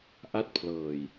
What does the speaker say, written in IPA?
ʔ a˥˩ t̚ pʰ l ɤː˨˩ j

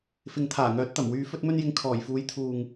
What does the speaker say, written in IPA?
f ɪ˨ ŋ t̪ʰ aː˨˩ ŋ œː˨˥ t̚ t̪ ɐ˨˩ m w yː˨˧ f ɵ˧ t̚ m ɵ˧ n j ɪ˨ ŋ kʰ ɔː˨˩ j f uː˨˥ j t̪ʰ uː˨ ŋ

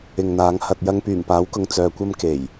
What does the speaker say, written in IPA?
ɪ˨ ŋ n̪ aː˨˥ ŋ h ɐ˧ t̚ j ɐ˥ ŋ p yː˨˩ m p aː˨˥ w k ʊ˨ ŋ t͡s œː˧ kʷ ɐ˥ m k e˨˩ j

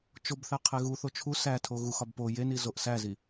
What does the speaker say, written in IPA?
t͡ʃ o b θ æ qʰ e ɣ u θ o t͡ʃʰ u s æ tʰ o ɣ u x ɒ b p o j e n i z o ʔ s æ z i

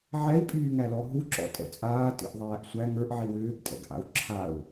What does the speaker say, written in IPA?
ʕ ɛ i̯ pʼ yː ŋ æ l ɔ ɦ u ǁ ɔ̰ tʼ ɛ̰ t͡sʼ aː t ḭ ʔ ðˤ æː ʔ sʷ æ ŋ ə˞ ʔ ʕ i w ʏː ɡ tʼ ɛ̰ ɡ ʔ a̰ u̯ ǁʰ a u̯

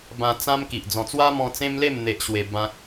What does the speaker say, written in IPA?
b ã˧ t͡s ã˦ m k i˨ ʔ d͡z ɔ̃˧ t͡s w a˦ m ɔ̃˧ t͡s ẽ˦ m l e˥˧ m n̪ e˦ ʔ ɕ w e˧ b ã˦ k̚

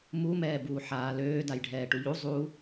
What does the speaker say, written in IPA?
m u m ɛː b uː ħ aː l øː d a j ɖʱ ɛː ʈ u ʎ u zˤ u

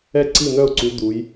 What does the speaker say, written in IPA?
ɛ˥˩ ǀ i˥˩ n̪ œ˥˩ ʊ̯ ǀ u˨˦ d̪ u˨˦ j

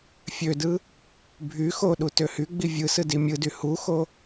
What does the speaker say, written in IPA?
fʲ ø d ɯ | bʱ y x o ɗ u t ø h y ɡ͡b i vʲ ɯ s ɯ d i mʲ ɯ d y h u x o

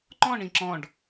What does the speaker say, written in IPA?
ŋ͡ǃ ɔ̃ ɳ ĩ ǁ ɔ̃ ɖ

